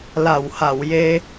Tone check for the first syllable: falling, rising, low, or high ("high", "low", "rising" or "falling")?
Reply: low